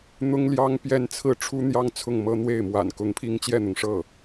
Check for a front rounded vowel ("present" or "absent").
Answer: absent